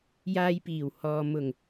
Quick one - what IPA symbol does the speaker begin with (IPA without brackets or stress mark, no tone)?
j